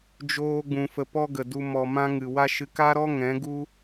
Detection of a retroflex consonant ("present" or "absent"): absent